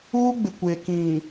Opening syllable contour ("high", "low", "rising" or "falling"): high